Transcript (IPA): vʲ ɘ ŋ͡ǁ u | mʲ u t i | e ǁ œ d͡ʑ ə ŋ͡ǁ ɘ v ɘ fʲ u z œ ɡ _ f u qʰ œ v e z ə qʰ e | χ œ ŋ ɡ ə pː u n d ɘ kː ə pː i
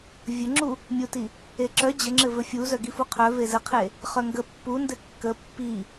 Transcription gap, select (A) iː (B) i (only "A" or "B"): B